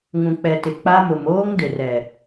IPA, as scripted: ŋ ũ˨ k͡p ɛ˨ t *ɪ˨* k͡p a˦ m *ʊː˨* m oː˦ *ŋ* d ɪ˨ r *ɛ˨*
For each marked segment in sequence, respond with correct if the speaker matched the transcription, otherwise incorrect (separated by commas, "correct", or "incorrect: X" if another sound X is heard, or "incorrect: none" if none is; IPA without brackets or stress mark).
correct, incorrect: ʊ˨, correct, correct